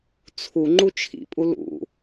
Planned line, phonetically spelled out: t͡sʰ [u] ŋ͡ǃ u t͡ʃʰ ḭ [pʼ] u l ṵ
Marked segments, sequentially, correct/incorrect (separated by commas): correct, correct